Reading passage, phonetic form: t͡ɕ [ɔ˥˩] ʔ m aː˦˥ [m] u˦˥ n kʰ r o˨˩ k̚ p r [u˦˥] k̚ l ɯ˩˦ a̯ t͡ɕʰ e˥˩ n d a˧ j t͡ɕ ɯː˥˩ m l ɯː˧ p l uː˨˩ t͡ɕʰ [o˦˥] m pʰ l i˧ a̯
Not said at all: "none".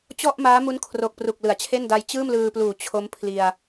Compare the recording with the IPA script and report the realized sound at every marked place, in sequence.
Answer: ɔ˥˩, m, u˨˩, o˦˥

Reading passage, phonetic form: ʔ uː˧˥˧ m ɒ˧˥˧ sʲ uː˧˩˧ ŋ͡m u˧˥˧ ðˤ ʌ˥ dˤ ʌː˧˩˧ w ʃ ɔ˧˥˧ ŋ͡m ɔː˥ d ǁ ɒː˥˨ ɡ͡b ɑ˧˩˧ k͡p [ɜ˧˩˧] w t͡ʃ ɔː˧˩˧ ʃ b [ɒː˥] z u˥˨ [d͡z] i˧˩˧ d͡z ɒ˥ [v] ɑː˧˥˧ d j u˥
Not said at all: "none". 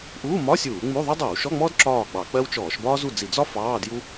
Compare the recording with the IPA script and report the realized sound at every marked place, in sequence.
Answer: ɜ˥, ɒː˥, d͡z, f

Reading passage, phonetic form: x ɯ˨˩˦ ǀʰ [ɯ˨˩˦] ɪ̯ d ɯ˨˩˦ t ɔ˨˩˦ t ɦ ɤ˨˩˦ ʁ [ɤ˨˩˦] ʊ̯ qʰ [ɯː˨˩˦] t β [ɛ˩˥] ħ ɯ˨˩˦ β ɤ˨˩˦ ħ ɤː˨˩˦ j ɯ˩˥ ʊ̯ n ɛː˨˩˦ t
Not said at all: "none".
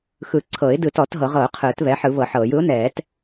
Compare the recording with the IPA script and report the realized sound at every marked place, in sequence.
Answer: ɤ˨˩˦, ɤ˨˩˦, ɯː˨˩˦, ɛ˩˥

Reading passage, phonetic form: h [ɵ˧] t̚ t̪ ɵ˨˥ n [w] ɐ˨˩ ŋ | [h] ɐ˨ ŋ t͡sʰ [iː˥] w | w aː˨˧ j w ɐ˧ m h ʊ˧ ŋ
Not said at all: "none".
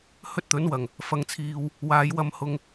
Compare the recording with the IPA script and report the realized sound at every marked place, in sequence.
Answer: ɵ˥, w, f, iː˨

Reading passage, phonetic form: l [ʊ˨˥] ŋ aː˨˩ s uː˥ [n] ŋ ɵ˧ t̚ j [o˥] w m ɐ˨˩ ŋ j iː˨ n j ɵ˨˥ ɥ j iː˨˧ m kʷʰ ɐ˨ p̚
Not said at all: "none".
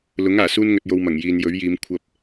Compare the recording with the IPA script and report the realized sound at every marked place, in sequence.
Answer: ʊ˨˥, n, o˧

